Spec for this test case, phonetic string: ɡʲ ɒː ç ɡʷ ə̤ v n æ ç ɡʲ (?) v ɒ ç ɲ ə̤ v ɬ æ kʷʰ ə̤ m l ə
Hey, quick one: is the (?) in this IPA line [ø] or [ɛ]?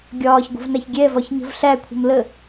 ɛ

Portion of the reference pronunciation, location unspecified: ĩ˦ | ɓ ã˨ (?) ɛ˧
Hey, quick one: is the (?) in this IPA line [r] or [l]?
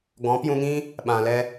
l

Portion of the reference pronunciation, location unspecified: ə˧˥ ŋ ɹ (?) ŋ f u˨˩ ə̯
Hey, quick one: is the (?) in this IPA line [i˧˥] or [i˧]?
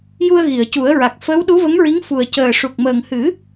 i˧˥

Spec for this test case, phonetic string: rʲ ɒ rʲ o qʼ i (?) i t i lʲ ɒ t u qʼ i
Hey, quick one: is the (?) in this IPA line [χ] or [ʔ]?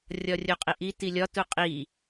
ʔ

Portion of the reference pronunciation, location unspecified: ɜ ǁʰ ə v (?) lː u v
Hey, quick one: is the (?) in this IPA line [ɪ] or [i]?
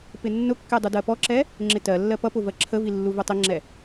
i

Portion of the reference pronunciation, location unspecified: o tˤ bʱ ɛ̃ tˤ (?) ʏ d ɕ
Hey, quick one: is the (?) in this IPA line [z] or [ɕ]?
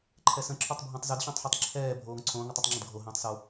z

